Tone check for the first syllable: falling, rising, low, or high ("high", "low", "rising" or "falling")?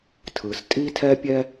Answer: low